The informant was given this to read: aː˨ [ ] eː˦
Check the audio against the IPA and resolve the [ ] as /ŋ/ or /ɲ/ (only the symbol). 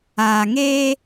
ŋ